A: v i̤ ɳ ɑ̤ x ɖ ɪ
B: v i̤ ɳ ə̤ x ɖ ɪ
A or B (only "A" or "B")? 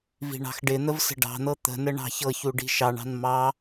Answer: A